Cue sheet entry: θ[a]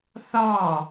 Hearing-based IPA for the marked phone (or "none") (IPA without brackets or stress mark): ɑ